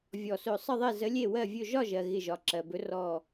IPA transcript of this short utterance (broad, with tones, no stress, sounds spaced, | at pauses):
vʲ ɔ˧˩ s ɵ˧˩ sˤ ə˥˩ ðˤ e˥˩ z ə˨˥ lʲ e˥˩ w ɜ˥˩ vʲ ɵ˥˩ ʒ ɒ˥˩ ʒ ɜ˩ ɣ ɪ˧˩ ʒ ɒ˩˧˩ ǁ ɜ˩ b ɵ˨˥ r ɔ˧˩